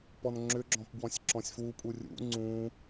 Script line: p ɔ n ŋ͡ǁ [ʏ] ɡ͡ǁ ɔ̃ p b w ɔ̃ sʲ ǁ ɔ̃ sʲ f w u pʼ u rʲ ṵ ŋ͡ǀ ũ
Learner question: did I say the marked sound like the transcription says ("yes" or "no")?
yes